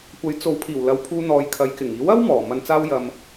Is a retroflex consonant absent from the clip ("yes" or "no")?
yes